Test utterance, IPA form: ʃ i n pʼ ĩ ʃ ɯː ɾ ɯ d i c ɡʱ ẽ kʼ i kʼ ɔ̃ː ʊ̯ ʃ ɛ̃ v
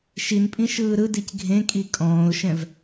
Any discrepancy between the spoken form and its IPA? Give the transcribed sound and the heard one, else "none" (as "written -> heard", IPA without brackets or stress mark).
none